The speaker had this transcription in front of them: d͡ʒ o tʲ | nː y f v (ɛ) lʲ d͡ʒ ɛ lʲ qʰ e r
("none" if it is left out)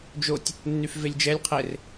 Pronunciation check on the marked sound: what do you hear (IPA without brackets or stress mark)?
e